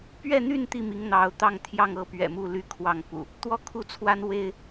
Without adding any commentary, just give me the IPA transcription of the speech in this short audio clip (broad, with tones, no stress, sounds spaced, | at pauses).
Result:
p ɥ ɛ˥˨ n̪ y˥˨ n t̪ i˥˨ m i˨˦ ŋ n̪ ɑ˨˦ ʊ̯ t̪ ɑ˥˨ ŋ t̪ʰ j ɑ˥˨ ŋ ɤ˥˨ p ɥ ɛ̰˨˩ m u˥˨ l y˥˨ kʰ w ɑ˥˨ ŋ p ṵ˨˩ | t̪ w ɔ˥˨ kʰ u˥˨ t͡sʰ w a˦ n w e˦ ɪ̯